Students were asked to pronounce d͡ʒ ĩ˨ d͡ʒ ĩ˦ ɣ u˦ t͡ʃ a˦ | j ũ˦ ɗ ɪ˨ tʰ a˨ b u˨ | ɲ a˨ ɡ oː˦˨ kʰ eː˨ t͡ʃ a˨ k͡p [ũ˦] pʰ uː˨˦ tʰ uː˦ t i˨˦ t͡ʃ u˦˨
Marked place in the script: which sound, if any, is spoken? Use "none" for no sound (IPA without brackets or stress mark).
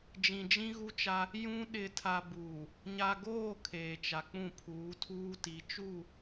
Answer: ũ˦˨